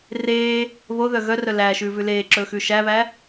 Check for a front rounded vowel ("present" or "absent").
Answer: present